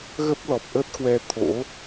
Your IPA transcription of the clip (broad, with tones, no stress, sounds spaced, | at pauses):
ɣ ə˦˥ p̚ l ɔ˨˩ p̚ ʔ əː˦˥ t̚ k w ɛ˧ t̪ʰ o̰˧˥